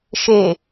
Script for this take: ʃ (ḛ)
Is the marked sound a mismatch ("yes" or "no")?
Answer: yes